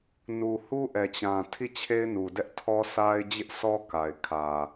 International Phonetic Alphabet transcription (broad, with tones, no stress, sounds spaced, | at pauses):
n u˨ h u˦ ʔ ɛ˨ t͡ɕ ã˨ tʰ i˦˨ t͡ɕʰ e˦ ɪ̯ n u˨ d ɛ˦ ʔ tʰ ɔ˦ sʰ a˦ ɪ̯ d͡ʑ ɪ˦ ʔ s ɔ˦ k a˨ ɪ̯ kʰ ä˨